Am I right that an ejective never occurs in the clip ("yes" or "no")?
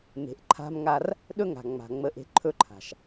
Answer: yes